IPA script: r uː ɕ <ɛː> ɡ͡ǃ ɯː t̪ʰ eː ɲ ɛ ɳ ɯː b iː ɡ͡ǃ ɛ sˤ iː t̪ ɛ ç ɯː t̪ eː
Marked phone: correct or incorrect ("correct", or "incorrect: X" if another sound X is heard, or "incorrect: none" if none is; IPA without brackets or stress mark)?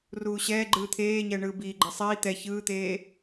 correct